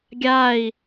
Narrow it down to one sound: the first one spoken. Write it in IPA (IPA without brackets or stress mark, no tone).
ɡʲ